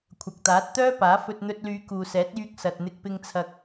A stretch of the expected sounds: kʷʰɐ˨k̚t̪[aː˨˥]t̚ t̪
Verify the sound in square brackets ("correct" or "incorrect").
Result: correct